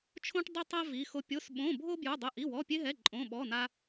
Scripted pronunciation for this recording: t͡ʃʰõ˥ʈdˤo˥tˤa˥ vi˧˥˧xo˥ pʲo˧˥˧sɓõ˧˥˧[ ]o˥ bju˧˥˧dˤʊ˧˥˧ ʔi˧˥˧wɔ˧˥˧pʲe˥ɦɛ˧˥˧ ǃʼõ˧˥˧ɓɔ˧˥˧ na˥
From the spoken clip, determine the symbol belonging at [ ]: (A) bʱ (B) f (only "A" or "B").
A